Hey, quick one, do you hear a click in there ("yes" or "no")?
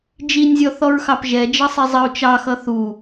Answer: no